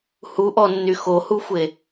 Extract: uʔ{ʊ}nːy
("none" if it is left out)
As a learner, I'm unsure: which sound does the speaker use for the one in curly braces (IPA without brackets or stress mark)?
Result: ɔ